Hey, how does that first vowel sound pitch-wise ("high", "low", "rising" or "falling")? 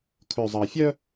low